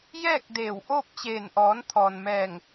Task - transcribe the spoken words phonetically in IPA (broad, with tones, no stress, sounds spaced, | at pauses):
j ɛː˥˨ k̚ d eː˧˩ w ʔ oː˥˨ p̚ t͡ɕ eː˧˩ n ʔ ɔː˩˧ n t̪ʰ ɔː˩ n m ɛː˧˩ ŋ